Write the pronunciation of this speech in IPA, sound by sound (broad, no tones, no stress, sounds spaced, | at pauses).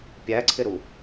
pʲ æ ǀʰ ɪ ɾ u